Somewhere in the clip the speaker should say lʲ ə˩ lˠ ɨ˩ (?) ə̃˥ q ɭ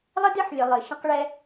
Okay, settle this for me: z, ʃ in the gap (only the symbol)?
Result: ʃ